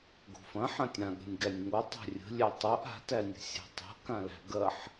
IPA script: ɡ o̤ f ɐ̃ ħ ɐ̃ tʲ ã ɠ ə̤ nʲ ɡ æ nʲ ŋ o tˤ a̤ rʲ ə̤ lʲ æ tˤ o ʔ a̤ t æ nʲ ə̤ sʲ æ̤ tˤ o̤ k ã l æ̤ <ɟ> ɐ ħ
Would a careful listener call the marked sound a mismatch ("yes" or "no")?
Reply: yes